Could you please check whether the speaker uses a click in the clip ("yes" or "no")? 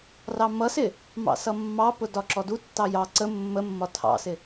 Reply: yes